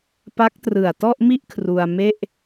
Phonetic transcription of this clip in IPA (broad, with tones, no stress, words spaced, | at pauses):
pa˦˥k̚trɯ˨˩a̯tɔ˥˩ʔmi˥˩ʔ kʰru˧a̯me˥˩ʔ